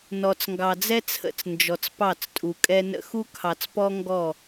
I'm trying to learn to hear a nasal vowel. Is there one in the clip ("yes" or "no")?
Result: no